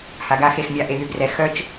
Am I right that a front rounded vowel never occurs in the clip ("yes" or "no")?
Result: no